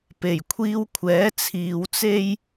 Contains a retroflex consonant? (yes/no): no